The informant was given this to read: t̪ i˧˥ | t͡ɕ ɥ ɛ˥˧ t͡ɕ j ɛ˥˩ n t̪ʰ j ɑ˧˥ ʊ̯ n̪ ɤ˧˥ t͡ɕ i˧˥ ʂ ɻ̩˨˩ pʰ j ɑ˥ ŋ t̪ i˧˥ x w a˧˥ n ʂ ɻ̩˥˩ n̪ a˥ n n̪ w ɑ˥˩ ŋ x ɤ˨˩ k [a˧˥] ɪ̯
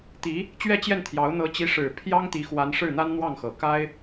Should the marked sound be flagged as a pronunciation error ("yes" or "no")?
yes